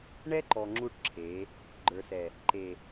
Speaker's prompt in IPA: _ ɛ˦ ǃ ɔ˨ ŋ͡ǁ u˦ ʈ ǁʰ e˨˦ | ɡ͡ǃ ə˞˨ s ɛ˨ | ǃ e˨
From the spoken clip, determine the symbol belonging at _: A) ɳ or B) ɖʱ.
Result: A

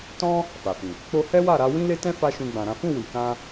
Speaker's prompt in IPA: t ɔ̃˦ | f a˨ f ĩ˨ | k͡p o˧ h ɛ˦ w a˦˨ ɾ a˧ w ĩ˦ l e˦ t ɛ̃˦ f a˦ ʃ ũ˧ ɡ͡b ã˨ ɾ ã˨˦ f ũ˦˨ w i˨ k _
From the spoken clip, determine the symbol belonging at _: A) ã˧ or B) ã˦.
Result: A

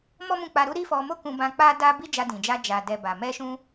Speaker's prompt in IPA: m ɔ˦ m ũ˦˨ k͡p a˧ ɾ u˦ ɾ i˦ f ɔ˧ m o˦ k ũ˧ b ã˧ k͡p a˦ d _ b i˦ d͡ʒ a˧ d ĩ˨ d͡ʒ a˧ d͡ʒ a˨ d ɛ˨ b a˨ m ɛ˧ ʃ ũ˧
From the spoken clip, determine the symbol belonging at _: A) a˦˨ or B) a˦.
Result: B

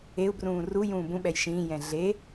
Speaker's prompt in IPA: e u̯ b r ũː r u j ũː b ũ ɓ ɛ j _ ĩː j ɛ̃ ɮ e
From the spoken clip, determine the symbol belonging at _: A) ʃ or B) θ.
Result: A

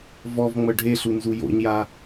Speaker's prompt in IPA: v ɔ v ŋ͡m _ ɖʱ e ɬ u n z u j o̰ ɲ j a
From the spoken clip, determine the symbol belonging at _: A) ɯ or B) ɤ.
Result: B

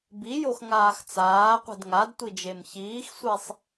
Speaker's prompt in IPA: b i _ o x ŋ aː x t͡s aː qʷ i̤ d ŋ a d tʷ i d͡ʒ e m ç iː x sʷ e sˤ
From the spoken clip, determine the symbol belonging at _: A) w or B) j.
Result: B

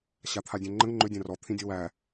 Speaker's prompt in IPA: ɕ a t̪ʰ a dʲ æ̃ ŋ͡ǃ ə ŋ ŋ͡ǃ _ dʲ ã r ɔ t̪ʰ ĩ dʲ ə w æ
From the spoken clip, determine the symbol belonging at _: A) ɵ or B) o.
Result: A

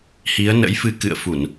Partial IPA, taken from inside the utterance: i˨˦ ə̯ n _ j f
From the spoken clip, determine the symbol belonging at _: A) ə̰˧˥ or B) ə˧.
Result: A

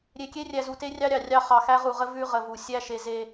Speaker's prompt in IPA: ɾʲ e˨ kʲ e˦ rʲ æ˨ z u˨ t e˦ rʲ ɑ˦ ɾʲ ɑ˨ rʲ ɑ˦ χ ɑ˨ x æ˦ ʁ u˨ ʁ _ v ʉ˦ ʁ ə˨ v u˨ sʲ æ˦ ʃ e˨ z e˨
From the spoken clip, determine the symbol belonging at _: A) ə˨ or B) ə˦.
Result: B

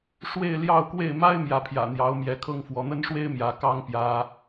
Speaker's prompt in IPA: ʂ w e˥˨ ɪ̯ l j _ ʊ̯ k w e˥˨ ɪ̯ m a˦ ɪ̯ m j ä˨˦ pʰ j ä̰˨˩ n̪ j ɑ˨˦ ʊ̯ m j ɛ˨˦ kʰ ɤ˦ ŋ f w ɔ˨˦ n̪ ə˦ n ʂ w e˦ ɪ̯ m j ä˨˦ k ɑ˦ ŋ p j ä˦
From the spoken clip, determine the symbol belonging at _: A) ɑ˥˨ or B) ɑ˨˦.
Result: A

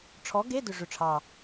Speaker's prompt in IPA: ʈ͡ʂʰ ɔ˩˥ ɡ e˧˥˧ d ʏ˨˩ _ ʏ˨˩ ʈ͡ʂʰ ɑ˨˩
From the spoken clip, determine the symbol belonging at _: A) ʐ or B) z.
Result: A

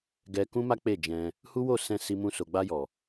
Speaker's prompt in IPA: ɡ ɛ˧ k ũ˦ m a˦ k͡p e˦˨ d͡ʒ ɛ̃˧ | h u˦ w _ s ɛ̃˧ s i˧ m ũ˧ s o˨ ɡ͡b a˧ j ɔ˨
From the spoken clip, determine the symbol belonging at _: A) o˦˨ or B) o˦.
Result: A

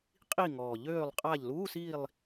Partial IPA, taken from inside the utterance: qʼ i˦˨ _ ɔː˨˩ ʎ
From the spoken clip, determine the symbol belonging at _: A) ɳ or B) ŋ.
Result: B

